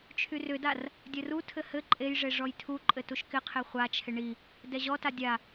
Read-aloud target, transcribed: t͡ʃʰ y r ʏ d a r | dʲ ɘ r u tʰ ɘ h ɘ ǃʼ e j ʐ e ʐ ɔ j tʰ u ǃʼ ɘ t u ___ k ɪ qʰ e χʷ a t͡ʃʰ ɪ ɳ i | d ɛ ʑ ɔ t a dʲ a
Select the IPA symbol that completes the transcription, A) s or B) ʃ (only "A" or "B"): B